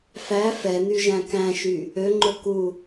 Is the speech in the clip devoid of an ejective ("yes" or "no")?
yes